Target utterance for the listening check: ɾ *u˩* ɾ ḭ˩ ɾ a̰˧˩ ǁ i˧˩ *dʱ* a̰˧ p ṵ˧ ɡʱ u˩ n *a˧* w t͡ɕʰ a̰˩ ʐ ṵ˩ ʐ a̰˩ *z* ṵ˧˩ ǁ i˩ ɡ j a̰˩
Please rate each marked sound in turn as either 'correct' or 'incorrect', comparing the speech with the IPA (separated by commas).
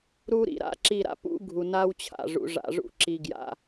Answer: incorrect, incorrect, correct, incorrect